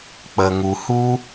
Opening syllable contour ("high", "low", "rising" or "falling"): low